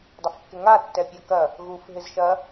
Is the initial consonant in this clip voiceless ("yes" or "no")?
no